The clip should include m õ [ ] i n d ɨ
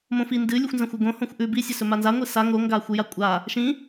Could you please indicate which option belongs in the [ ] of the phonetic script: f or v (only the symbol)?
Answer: f